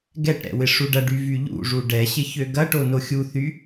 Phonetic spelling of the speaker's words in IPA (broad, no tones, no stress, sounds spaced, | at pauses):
ɡ ɛ ʈ ɾ ɛ̰ w ɪ ʂ u ɖ ɐ ɖ y v y ʎ ṵ ʐ u ɖ ɛ ɕ ɪ ç ø ɡ ɐ ʈ o n o xʲ u θ y